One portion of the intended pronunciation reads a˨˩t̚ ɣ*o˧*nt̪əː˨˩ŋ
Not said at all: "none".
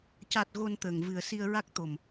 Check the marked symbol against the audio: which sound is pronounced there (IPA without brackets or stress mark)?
o˧